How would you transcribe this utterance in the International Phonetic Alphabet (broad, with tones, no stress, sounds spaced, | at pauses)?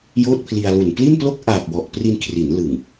j oː˥˩ t̚ pʰ l i˧ a̯ l u˨˩ n p l i˥˩ n p l o˥˩ k̚ ʔ aː˨˩ p̚ w ɔ˨˩ ʔ p r i˧ n kʰ r i˩˦ n l ɯ˨˩ ŋ